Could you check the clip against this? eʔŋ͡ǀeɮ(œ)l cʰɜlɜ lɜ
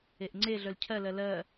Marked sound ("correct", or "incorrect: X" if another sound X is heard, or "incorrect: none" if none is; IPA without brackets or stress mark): correct